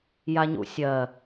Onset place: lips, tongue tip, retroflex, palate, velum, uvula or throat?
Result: palate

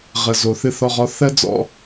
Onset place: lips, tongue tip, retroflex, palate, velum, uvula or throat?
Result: uvula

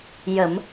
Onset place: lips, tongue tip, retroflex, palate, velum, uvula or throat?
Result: palate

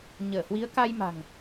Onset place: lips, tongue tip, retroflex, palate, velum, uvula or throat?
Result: palate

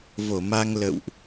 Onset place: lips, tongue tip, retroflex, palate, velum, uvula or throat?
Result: lips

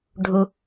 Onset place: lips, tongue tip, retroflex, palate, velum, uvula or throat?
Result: retroflex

